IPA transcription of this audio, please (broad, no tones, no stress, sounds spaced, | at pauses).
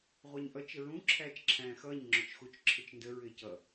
ʁʷ ɑ ɲ ʔ ʌ t͡ʃ ə ɹ ũ ǁʰ æː t͡ʃ ǁʰ æ̃ː x ʌː ɲ ŋ͡ǁ ʊ t͡ʃ x u t͡ʃ ǁʰ ɪ t͡ʃ n d ə ɹ ɪː c ʌ